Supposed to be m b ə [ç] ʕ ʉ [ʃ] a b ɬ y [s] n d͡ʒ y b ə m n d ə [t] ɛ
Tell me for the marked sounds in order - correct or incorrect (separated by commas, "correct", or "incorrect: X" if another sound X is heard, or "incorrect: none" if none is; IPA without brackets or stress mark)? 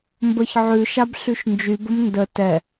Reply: correct, correct, incorrect: ʃ, correct